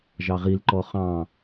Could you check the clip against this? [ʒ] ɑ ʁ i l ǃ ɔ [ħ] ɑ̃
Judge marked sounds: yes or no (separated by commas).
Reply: yes, no